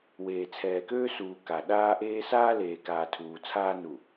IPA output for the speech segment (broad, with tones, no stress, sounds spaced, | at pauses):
w eː˨ t͡sʰ ɛː˨ k øː˦ s uː˨ k a˨ ɗ aː˦ ʔ eː˦ s aː˦ l eː˨ k aː˨ tʰ uː˨ t͡sʰ aː˦ n u˨